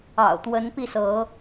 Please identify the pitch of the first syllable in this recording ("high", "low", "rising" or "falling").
low